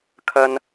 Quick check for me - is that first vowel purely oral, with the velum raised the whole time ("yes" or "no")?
yes